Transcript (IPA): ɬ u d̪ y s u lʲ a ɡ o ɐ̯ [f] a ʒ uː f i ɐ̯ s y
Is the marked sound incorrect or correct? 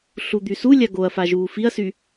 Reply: correct